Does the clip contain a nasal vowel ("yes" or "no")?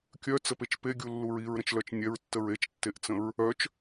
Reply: yes